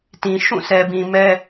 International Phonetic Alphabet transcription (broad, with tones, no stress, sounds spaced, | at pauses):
t ĩ˨ ʃ ũ˦˨ s ɛ˨ b ĩ˨ m ɛ˦